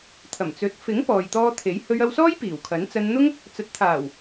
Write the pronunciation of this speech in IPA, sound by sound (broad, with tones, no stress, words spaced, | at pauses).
t̪ʰɐ˨˩m t͡sɵ˨t̚fɪ˨˥ŋ pɔː˨jt̪ɔː˧ t̪ʰe˨˥j hɵ˧ɥɐ˧wsɔː˥j piː˨˩wkʰɐ˨˥n t͡sɐ˧nn̪ʊ˥ŋ | t͡sɐ˨˥t̚t̪ʰaː˨˩w